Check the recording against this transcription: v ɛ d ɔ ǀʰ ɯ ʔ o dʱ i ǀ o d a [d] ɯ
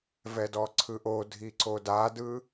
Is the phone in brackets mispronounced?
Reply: no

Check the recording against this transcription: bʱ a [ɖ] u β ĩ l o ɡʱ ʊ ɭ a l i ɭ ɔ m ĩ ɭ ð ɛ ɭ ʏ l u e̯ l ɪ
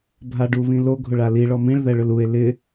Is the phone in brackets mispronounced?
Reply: no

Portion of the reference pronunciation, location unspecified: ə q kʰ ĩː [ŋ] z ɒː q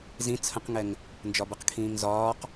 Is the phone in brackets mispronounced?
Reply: no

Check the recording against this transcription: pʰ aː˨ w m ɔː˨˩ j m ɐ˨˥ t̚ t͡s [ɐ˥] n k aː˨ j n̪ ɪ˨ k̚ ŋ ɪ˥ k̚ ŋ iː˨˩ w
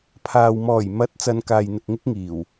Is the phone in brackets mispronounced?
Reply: yes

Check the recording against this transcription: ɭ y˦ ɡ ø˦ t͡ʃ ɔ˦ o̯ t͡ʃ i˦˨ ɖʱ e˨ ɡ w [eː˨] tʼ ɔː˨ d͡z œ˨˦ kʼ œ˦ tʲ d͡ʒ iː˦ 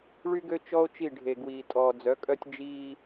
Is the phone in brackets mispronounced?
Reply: yes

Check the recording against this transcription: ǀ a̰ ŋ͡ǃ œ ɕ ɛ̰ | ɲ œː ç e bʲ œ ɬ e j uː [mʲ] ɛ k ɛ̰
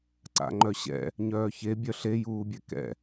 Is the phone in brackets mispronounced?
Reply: yes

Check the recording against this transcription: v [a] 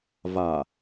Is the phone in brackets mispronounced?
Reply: no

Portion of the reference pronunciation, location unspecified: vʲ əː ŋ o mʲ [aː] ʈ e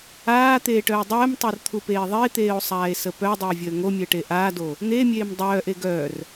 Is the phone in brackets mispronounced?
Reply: yes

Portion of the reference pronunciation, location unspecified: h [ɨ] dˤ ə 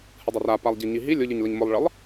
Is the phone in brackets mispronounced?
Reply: no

